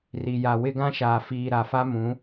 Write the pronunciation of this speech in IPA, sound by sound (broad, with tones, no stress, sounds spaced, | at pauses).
r i˨ j a˨ w ɪ˦ ɡ ã˦ ʃ aː˨ f iː˨ ɾ a˨ f a˦ m ũ˨˦